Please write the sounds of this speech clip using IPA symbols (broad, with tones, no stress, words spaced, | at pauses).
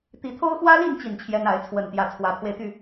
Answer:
t̪i˨˦t̪ʰo˦ʊ̯xwä˦li˥˨n t͡ɕi˥˨nt͡ɕʰjɛ˦n a˨˦ɪ̯t͡sʰwə˨˩nt̪jä˨˦ t͡sʰwä˨˦pʰwe˧ɪ̯t̪y˥˨